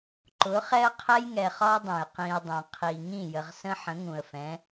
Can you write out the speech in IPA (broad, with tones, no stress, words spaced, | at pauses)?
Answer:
ǃʊ˨˦ χɛ˦ə̯qʰɛ˦jŋɛ˨ χɒ˦dˤɛ̃˨j qĩ˨ə̯ dˤɛ̃˨qʰi˨ ŋĩ˦˨jə˨ʁ sə̃˦ħə̃˨˦ŋũ˨ə̯fɛ̃˨˦